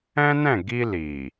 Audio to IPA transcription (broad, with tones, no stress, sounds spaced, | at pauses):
ɛ̃˦ n ɛ̃˦˨ ɡ i˧ l i˨